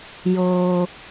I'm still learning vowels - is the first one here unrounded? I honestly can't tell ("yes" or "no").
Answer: no